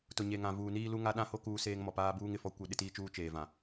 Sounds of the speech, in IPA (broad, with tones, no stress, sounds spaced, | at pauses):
t ʊ˨ ɲ e˨ ŋ ã˨ v uː˨ n iː˦ l u˦ ŋ a˦ ɗ ã˦ h o˦ k uː˦ s eː˦ ŋ m ɔ˨ p aː˦ b uː˦ ŋ ɪ˨ f ɔ˦ kʷ e˦ ɗ ɪ˦ t iː˦ t͡ʃ uː˦ t͡ʃ eː˨ v ã˨